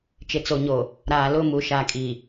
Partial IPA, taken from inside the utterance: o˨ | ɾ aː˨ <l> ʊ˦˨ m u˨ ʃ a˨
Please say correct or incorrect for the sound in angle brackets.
correct